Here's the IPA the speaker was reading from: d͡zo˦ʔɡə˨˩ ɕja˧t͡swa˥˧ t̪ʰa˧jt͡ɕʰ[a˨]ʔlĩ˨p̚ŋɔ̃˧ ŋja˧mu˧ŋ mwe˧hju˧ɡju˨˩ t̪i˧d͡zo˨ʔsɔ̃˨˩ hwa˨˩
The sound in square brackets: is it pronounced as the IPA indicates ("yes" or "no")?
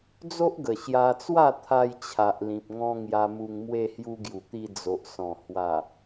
yes